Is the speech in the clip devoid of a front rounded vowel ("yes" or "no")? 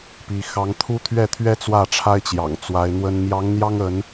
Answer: yes